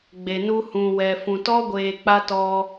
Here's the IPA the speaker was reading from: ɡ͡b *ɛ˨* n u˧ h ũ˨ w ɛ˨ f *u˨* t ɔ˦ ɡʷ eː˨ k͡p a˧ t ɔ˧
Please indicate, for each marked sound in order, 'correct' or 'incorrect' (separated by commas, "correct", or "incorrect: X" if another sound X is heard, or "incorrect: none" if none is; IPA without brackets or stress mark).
incorrect: e˨, incorrect: ũ˨